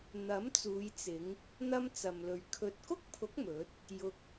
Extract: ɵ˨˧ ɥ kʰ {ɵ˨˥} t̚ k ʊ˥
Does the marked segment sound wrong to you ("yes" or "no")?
yes